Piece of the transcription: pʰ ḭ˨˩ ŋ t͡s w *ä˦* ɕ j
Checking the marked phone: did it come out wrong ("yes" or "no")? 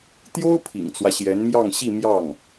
no